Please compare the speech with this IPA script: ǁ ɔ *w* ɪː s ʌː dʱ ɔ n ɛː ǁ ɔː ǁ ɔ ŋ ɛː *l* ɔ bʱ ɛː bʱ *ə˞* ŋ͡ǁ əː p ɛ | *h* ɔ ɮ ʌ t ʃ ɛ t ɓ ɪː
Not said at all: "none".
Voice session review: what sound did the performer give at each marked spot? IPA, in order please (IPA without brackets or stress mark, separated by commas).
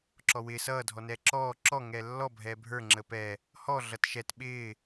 w, lː, ə˞, h